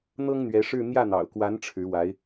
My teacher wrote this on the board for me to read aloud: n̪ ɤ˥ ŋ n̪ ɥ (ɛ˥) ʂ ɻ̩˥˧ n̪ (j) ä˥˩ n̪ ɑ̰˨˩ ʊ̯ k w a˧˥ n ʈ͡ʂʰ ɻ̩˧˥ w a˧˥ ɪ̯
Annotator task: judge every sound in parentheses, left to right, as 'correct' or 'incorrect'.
incorrect: ɛ˧˥, correct

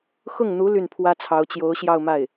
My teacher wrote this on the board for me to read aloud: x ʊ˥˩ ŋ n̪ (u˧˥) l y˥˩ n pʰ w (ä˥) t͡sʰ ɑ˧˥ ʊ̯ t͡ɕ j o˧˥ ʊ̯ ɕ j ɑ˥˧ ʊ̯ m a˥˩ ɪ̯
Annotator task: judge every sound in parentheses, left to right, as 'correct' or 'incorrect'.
correct, correct

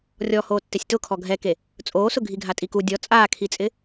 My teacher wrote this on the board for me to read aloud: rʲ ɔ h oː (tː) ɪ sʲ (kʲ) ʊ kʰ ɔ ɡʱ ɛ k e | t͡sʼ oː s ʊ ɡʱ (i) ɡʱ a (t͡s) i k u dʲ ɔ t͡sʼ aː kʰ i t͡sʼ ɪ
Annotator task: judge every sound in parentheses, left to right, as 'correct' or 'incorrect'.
correct, incorrect: t, correct, incorrect: tʼ

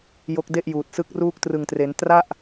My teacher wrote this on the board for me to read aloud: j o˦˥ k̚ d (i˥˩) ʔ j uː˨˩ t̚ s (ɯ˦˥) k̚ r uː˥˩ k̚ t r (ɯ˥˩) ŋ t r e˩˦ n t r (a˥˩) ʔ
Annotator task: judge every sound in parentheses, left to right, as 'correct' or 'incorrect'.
incorrect: e˥˩, correct, incorrect: ɯ˨˩, correct

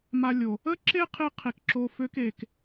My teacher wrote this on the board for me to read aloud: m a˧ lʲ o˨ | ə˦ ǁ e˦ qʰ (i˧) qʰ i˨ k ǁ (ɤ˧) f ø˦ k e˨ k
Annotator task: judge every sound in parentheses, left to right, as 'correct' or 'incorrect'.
correct, incorrect: o˧

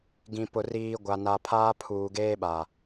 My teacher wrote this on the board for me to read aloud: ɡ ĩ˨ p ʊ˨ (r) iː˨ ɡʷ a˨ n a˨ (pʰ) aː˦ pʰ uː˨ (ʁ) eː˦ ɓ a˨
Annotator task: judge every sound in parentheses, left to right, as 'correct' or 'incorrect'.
correct, correct, incorrect: ɡ

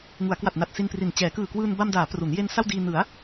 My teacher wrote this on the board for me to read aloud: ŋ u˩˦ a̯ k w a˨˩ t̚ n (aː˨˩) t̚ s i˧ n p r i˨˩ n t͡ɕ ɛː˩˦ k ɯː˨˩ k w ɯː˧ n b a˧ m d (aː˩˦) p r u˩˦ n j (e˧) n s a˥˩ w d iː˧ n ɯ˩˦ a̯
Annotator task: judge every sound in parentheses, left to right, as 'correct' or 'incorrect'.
incorrect: a˨˩, correct, correct

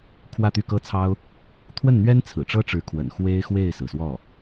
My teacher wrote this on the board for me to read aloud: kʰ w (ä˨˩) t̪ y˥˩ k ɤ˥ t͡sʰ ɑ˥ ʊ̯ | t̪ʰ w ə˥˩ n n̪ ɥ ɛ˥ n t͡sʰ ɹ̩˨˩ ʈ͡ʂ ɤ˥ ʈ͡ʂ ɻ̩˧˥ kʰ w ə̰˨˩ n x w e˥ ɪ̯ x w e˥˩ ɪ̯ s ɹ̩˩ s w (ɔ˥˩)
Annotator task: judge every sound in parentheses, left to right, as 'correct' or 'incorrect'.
incorrect: ä˥˧, correct

